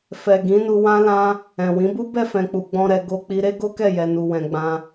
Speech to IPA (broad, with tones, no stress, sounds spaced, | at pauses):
f ɛ˨ ɡ ĩ˨˦ n u˧ w ã˦ l ã˦ | ɛ̃˨ w ĩ˨˦ b u˦ b ɛ˦˨ f ɛ̃˨ k͡p u˨ ɡ͡b ɔ̃˧ ɾ ɛ˧ ɡ o˧ k͡p i˧ ɾ e˦ ɡ o˦ k ɛ˦˨ j ɛ˧ n u˧ w ɛ̃˧ ɡ͡b ã˦